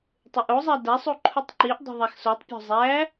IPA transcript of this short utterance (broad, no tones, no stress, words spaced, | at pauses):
tˤeʔozˤæ dæsˤu ǃʰutˤǃiʔdˤe̤ ðˤæxsotˤpʲo̤ zˤæ